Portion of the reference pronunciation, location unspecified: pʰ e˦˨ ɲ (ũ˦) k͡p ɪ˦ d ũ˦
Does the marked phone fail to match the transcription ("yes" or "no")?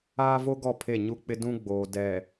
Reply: yes